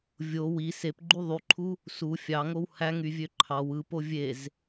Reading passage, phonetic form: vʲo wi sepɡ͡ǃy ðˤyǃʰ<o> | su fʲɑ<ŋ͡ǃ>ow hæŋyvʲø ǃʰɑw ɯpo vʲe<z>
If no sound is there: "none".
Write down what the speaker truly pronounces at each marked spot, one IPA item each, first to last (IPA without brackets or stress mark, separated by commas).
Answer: u, ŋ, z